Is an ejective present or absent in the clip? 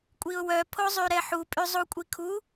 present